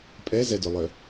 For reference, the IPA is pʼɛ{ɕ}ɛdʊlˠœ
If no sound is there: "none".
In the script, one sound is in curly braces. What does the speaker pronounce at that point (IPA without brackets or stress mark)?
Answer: z